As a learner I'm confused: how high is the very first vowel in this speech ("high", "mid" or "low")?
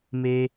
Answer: mid